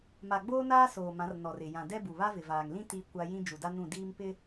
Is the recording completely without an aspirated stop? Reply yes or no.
yes